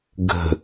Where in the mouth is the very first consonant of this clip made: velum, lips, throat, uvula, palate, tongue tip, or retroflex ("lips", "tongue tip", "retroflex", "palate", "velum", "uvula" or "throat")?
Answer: velum